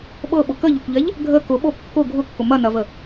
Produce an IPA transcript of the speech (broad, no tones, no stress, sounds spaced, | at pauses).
ɓ ɤ ɓ ʊ k ə ʎ ʊ kʷ ʎ ɛ ʎ | ɡʱ ə k ʊ ɓ o kː ʊ ɡʱ ʊ kː ʊ m ɐ n ɐ v ə